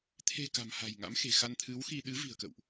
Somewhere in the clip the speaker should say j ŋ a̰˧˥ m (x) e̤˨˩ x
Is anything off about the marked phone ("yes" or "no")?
no